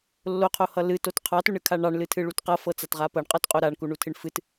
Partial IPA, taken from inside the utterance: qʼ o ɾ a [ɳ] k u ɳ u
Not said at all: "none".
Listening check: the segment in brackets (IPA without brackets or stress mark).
ɳ